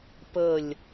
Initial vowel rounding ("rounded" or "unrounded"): unrounded